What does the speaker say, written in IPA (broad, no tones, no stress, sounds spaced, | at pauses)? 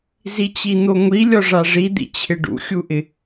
z i t͡ɕ i n̪ o ŋʷ i lʲ ɔ ʐ a ʐ i d̪ ḭ t͡ɕʰ ɪ ɖ ṵ xʲ u ʔ ɪ